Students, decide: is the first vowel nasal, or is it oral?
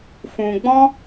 nasal